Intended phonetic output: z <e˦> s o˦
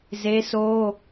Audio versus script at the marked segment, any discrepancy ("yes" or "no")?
no